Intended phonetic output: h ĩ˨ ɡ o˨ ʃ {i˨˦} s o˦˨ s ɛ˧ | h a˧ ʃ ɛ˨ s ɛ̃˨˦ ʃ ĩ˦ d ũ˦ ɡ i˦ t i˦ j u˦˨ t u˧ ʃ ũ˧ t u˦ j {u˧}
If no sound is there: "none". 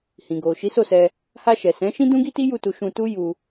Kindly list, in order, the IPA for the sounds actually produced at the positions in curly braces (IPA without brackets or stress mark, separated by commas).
i˨˦, u˧